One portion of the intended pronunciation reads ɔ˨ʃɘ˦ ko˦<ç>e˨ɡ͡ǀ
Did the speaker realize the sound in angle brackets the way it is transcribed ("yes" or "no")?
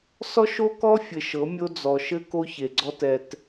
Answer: yes